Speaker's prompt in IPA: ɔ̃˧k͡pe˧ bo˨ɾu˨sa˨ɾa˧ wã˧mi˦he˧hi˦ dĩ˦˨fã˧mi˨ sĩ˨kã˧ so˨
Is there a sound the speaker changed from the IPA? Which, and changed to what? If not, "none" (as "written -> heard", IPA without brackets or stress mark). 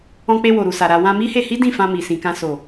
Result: b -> w